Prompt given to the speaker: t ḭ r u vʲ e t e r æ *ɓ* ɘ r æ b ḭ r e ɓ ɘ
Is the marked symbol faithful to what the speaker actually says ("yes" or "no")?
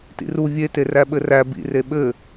yes